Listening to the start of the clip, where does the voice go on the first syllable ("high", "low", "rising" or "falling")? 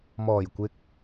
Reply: low